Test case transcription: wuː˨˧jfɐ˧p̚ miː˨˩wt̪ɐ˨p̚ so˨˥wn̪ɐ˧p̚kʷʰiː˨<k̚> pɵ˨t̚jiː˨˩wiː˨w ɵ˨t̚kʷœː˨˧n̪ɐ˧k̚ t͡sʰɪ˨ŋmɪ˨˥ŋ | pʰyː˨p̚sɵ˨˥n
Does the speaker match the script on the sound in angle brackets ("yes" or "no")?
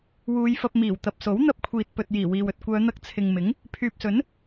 no